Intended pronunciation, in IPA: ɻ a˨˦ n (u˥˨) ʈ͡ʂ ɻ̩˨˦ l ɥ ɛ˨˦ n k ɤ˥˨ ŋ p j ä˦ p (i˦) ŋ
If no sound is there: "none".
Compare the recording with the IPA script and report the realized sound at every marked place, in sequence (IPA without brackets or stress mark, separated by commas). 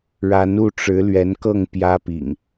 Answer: u˥˨, ḭ˨˩